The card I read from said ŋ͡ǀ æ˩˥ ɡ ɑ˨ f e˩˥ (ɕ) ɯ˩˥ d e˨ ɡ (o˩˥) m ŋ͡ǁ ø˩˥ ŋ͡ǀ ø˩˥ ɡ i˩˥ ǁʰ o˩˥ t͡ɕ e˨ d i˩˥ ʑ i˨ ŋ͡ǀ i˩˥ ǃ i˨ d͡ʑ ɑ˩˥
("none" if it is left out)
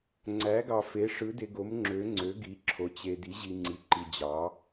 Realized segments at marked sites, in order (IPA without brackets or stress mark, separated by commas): ʂ, o˩˥